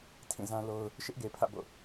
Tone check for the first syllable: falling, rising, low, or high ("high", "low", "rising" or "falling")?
falling